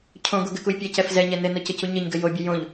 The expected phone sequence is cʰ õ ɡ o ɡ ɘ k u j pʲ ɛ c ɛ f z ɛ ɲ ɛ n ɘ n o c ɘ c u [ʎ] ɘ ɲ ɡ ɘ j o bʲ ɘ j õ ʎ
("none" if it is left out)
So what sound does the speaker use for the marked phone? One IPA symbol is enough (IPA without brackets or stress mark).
ɲ